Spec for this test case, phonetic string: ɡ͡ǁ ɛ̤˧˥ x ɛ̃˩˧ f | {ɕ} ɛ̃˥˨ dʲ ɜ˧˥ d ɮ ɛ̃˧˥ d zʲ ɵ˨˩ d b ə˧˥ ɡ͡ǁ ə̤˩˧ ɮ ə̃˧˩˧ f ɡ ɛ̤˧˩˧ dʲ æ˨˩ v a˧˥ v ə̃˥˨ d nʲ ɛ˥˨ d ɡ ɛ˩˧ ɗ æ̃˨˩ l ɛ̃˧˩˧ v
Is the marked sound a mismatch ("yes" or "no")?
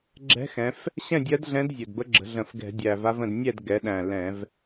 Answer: no